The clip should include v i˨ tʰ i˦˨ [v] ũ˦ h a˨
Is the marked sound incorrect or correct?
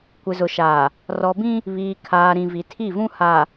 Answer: correct